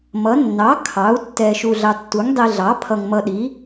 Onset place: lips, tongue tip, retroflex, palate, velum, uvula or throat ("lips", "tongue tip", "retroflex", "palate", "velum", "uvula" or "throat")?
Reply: lips